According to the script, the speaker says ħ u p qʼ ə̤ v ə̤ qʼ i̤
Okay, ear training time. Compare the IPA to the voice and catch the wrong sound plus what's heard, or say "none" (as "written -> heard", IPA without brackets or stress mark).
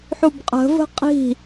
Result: p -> b